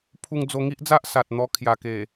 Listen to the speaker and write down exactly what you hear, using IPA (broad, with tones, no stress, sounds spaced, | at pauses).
pʰ u˧ ŋ d͡z o˧ ŋ i˦ ʔ d͡z a˦ ʔ s a˨ t̚ n̪ ɔ˧ kʰ j a˨˩ k e˨˩